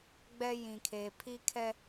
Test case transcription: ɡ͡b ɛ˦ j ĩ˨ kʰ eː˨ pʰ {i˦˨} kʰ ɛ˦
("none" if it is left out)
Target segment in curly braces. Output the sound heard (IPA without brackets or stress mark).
i˦